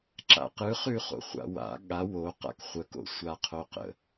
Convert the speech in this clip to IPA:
ǁa̰qɯχʉ χo̰χʷa̰wa̰ ɠa wo qa̰kχʷəko̰ sʷaqʰoqə̰

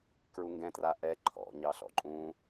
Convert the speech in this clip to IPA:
kɹuŋɡɛ̃tra ʔɛ ǃʰɔ̰ ɲɑɬɔ̰ǃʼũ

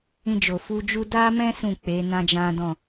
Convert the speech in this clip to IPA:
ĩ˧d͡ʒo˨ fu˧d͡ʒu˦ da˦mɛ̃˦ sũ˦˨k͡pe˨˦ nã˦d͡ʒã˦dɔ̃˦˨

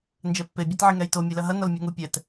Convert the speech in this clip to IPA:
nd͡ʒɛpːe bʲɛtʕiŋɛjto mʲelɐɦɐ nɒlmʲoŋupʲɛt

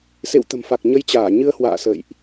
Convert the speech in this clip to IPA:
sḛ˧˨wt̪ə̤˨˩mfa˨˩k̚ɲə˨˦j t͡ɕaː˧˩ɲɨ˧ə̯hwa̰ː˧˨ sə̰˧˨jʔ

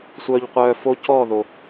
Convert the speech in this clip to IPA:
sʷœː˧ʎqʷœː˧fo˦ cɔː˦˨ðo˨

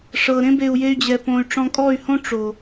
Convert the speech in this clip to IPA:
ʂɤ˨ ɾẽ˦be˨u̯je˧y̯d͡ʑɛ˨ põ˨y̯ ʈ͡ʂɔ̃˧kʼɔ˦˨y̯hõ˦ ʈ͡ʂo˨

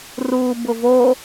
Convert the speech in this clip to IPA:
ru bʊvo

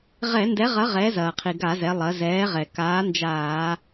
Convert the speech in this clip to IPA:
ʁɛ˧˩˧ndɛ˨˥ʁɐ˨˥ ʁɛː˨˥zɐː˩qʰi˩ ɡa˧˩˧zɛ˩˧ lˠɐ˩˧zɛː˨˥ʁɛ˩ kaː˨˥nd͡ʒaː˧˩˧

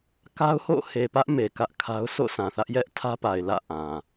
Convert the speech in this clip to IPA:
ka˦ʊ̯ho̰˦˨he˨pä˦ʔ me˨kä˦ʔkʰa˦ʊ̯ sʰo̰˦˨sʰã˨θä˦ʔjɛ˦ʔ tʰä˦pa˨ɪ̯lä̰˦˨ ʔã˨

